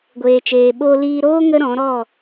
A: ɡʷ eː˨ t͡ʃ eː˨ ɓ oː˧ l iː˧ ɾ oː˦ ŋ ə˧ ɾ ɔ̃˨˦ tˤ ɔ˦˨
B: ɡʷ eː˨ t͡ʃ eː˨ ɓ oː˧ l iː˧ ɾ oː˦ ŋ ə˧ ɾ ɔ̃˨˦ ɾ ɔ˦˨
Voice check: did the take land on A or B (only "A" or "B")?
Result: B